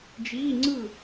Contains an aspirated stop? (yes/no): no